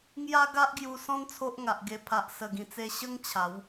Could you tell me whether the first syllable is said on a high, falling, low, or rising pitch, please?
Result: high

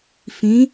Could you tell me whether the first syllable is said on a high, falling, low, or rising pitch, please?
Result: rising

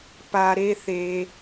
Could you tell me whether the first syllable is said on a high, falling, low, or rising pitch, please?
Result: high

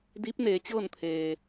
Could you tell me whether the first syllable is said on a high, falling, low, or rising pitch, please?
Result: rising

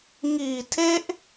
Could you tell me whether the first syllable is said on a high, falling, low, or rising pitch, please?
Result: low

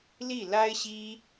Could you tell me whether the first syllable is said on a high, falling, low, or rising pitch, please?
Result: falling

